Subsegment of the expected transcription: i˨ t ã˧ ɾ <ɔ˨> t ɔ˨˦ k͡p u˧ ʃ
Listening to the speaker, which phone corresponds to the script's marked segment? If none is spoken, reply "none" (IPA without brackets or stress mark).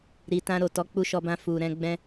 o˨